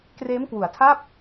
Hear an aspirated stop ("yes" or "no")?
yes